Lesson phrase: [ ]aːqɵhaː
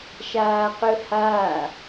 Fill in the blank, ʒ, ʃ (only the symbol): ʃ